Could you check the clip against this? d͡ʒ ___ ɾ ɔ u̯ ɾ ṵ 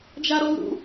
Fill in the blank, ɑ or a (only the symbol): a